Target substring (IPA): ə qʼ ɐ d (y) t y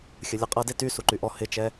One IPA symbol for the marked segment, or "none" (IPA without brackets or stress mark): e